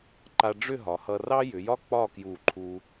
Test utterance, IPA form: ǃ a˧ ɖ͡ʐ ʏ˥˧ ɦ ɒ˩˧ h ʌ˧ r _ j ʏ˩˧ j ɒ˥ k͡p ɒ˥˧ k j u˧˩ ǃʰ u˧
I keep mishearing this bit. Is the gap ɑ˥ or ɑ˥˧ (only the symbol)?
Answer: ɑ˥